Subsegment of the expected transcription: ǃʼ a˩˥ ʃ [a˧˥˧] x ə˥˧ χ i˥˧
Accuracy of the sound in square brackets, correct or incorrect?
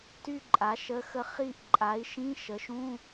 incorrect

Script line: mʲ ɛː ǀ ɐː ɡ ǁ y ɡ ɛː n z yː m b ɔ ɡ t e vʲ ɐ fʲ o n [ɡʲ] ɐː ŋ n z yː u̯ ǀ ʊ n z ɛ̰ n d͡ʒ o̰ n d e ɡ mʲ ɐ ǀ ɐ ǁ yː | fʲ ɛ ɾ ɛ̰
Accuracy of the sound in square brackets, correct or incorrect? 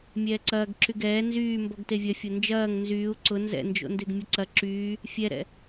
incorrect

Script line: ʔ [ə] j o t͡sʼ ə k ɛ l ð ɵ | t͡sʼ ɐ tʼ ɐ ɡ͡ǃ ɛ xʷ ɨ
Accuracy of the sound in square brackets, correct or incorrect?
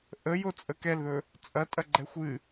correct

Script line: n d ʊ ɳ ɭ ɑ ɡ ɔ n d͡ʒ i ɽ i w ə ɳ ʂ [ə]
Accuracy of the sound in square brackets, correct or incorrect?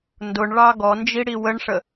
correct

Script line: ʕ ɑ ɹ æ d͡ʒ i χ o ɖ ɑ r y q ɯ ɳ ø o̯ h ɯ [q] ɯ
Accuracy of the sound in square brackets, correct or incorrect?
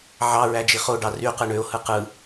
correct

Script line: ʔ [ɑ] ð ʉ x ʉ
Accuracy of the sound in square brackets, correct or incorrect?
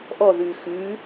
incorrect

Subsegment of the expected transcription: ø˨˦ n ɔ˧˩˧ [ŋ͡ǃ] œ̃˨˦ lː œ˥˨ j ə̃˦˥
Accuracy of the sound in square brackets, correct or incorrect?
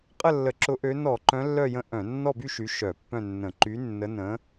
incorrect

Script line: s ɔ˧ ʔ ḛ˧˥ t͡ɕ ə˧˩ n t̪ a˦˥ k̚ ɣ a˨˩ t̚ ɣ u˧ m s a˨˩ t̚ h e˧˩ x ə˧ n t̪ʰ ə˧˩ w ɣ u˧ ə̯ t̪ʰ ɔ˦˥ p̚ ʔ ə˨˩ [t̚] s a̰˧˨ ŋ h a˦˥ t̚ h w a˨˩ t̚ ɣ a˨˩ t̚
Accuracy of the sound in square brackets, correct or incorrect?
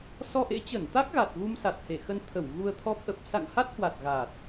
incorrect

